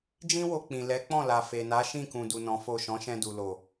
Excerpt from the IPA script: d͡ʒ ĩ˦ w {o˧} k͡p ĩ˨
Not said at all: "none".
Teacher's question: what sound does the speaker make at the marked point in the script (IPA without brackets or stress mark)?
o˧